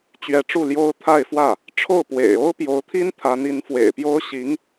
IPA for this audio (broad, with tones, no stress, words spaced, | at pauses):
t͡ɕɥɛ˧˥ʈ͡ʂu˥˩ljo˥ʊ̯ t̪ʰa˥˧ɪ̯fwä˥˩ | ʈ͡ʂʰo˥˩ʊ̯pwḛ˨˩ɪ̯ o˥ʊ̯pjo˧˥ʊ̯t̪ʰi˥n t̪ʰa˧˥ni˧˥nfwḛ˨˩ɪ̯pjo˥ʊ̯ ɕi˧˥ŋ